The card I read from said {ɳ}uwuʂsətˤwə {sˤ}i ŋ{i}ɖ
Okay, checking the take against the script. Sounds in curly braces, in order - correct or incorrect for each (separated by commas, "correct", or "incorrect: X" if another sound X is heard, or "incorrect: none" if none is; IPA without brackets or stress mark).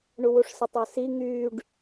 correct, incorrect: s, incorrect: y